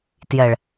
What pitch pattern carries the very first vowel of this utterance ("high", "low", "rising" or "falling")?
low